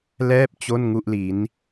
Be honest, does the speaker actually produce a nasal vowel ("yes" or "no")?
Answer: no